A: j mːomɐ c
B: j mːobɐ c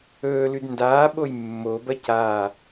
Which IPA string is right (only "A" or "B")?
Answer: B